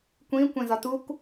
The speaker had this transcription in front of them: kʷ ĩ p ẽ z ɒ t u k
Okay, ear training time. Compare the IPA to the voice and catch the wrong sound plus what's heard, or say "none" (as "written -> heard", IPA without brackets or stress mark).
p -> kʷ